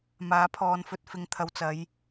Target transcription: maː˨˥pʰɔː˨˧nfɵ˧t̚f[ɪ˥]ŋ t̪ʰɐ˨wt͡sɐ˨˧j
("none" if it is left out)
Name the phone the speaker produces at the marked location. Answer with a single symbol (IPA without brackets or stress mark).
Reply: ɪ˨˧